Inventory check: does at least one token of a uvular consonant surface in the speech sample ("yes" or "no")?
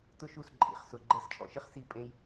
yes